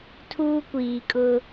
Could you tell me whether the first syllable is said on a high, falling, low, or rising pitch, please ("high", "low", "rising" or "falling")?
high